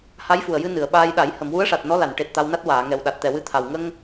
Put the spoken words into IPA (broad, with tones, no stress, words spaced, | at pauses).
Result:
ha˧˥jfu˨˩ə̯jɨ˧ nɨ˨˩˨ə̯ɓaː˧jɗa˨˩˦j hə˨˩˨mwu˧˥ə̯ʂa˨˩t̚ nɔ˧˥la˨˩˨nʈe˨˩t̚ t̪a˧wna˦˥t̚waː˨˩˨ ŋɛ˨˩w ɗa˨˩t̚t̪ɛ˨˩wɨ˧t̪ʰa˨˩w ŋə˧ŋ